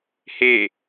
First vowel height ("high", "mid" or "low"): mid